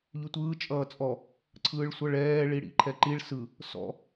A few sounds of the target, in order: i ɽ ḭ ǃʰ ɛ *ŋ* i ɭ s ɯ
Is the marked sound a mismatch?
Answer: yes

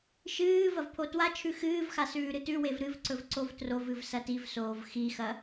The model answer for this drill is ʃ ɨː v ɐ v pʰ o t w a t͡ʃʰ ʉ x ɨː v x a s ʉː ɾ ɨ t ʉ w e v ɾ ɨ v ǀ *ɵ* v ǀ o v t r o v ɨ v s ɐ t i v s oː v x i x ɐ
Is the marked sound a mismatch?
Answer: no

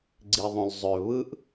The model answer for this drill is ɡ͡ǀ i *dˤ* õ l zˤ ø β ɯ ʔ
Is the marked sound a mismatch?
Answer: yes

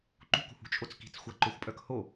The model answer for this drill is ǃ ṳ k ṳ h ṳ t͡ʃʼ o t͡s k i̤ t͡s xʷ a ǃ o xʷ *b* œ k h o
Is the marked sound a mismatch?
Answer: yes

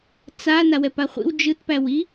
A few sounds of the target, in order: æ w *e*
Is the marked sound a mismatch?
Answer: yes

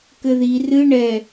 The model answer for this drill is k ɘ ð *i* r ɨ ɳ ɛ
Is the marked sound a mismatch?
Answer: no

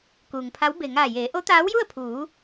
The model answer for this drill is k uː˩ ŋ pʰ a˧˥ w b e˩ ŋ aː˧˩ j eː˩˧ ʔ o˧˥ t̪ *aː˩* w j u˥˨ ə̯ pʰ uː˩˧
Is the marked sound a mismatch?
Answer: yes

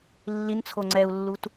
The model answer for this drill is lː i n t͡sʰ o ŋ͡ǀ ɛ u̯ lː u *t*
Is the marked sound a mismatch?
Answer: no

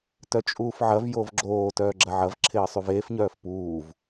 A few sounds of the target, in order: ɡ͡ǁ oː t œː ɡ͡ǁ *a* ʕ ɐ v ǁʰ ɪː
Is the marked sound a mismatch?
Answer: yes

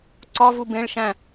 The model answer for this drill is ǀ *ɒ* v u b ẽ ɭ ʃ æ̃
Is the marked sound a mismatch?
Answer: no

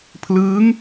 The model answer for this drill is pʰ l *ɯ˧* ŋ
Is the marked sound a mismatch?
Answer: yes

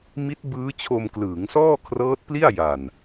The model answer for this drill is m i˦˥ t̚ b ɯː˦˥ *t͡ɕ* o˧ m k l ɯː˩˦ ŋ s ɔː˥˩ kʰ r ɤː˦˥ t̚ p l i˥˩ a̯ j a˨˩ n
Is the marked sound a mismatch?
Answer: yes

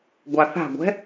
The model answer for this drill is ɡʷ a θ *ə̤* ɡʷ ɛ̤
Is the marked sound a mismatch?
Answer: yes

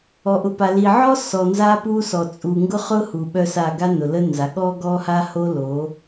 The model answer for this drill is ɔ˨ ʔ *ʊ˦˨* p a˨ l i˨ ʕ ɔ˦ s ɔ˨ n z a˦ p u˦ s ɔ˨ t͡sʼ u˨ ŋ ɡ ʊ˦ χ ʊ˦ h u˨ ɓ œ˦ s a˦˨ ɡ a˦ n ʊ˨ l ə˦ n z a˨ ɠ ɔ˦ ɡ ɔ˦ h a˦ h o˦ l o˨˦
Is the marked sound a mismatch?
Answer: yes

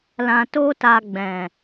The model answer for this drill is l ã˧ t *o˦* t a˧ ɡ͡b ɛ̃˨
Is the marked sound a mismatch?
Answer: no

